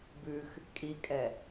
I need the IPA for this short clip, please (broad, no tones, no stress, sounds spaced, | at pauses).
b ʉ x | kʼ i kʼ ɛ